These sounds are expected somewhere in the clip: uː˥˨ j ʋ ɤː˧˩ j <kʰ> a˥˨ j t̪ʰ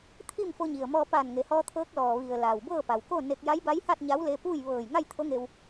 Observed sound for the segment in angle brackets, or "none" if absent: ŋ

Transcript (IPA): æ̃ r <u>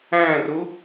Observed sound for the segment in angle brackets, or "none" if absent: u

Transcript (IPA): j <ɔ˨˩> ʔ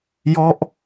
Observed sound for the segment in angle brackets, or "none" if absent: ɔ˥˩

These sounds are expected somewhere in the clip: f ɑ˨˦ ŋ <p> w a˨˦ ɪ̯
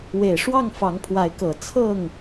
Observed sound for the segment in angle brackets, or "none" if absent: pʰ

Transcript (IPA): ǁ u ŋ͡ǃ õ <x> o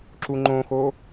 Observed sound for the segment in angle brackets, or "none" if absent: x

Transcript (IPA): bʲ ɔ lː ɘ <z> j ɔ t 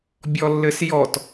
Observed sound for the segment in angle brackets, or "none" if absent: s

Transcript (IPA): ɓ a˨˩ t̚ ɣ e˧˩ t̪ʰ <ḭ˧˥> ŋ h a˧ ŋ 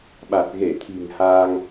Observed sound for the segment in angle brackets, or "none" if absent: i̤˨˩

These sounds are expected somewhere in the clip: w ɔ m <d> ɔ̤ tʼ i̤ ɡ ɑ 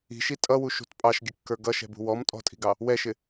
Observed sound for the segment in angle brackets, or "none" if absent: tʼ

